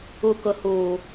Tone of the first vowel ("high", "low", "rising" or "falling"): low